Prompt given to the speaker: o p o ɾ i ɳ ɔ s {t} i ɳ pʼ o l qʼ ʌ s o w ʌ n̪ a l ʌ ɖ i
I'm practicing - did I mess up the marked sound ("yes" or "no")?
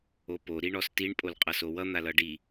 no